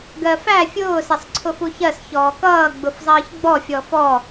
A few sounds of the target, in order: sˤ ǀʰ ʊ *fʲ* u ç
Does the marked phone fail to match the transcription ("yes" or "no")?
yes